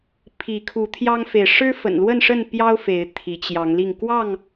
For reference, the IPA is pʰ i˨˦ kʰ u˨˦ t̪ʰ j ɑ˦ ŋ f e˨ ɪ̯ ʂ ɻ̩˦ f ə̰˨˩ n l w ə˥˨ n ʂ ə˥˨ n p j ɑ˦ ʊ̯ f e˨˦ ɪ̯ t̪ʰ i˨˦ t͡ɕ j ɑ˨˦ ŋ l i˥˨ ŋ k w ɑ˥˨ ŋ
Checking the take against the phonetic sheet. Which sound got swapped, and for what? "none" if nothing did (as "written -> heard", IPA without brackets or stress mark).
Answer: none